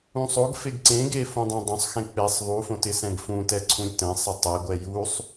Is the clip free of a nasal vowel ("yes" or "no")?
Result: no